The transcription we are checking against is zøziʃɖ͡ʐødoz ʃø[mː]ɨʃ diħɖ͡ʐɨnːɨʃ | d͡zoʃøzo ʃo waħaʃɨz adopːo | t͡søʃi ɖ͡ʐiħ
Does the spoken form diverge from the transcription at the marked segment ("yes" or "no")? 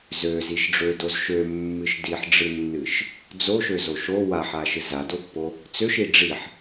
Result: no